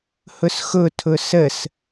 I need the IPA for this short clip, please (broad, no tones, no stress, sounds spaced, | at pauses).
h ʊ s x ʊ tʰ ʊ s ə s